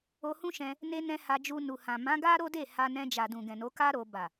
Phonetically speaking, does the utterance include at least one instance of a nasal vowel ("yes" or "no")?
yes